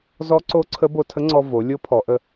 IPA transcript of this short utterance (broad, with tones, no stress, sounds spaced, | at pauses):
z ɔ˧˥ ǀ o˧˥ ǀʰ ə˧˥ b o˧ tʰ ə˧˥ ŋ͡ǀ ɔ˧ v o˩˧ lʲ o˧˥ pʰ ɔ˩˧ ʔ ə˧